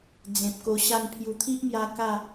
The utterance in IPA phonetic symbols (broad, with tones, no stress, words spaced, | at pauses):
d͡zẽ˨p̚ko˧ɕa˥˧n pʰju˨˩t̪ʰi˦ʔmja˧ ka˥˧